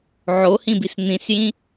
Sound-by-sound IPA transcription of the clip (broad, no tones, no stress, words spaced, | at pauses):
ʕohĩbis n̪ĩsjĩ